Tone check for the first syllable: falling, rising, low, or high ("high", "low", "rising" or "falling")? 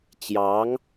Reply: rising